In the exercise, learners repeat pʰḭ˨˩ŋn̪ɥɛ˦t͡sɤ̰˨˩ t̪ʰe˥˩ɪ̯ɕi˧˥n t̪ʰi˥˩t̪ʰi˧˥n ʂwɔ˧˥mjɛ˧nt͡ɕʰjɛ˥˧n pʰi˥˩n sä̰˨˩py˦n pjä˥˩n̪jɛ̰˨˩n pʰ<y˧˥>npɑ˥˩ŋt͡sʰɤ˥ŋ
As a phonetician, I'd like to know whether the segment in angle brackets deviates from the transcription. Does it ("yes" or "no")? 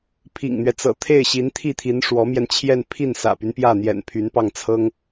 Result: no